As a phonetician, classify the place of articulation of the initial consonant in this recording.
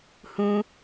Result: glottal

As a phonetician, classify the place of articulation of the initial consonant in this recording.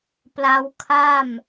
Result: labial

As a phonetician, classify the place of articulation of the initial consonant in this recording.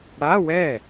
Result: retroflex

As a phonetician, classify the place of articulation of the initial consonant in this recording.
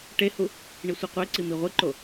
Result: retroflex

